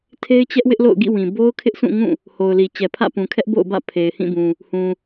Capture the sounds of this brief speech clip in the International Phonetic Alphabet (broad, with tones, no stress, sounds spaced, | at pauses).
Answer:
tʰ e˦ ɪ̯ t͡ɕ ɛ˦ ʔ w ɪ˦ ʔ l o̰˦˨ ʊ̯ ɡ ḭ˦˨ w ĩ˨ b o˦ ʊ̯ kʰ ɪ˦ ʔ sʰ ũ˦˨ ŋ ũ˦˨ | h o˨ ʊ̯ l i˨ t͡ɕ ɛ˨ pʰ ä̰˦˨ p ũ˨ kʰ ɛ˦ ʔ b o̰˦˨ ʊ̯ b ä̰˦˨ pʰ e˨ ɪ̯ h ĩ˦˨ b ũ˨ | h ũ˨